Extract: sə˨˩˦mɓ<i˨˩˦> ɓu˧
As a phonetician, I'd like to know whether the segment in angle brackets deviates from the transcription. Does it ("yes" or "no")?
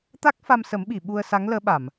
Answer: yes